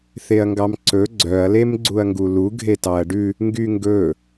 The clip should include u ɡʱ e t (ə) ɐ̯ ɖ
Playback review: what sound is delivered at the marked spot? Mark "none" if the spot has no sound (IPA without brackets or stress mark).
ɑ